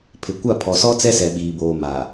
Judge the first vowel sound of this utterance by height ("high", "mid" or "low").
high